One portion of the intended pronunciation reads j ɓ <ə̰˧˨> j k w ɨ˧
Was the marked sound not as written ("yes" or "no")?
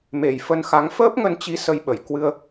yes